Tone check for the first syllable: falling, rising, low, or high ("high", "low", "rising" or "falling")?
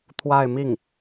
falling